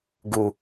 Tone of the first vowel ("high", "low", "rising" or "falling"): low